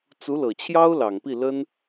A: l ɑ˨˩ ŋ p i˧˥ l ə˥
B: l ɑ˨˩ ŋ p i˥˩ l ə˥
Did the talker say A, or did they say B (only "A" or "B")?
B